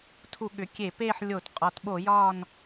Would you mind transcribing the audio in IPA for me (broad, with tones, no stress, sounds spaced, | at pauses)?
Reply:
tʰ u˧˩˧ ɠ ʏ˩˥ kʲ e˧˩˧ p e˦˨ ħ lʲ o˧˩˧ t qʼ ɒ˩˧ t ɓ o˧˩˧ j ɒ˦˨ n